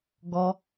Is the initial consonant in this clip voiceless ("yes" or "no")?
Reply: no